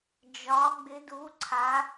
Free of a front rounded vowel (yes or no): yes